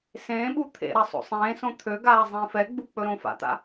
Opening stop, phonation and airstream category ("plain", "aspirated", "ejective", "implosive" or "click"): implosive